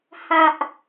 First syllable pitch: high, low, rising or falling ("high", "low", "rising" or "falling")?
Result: high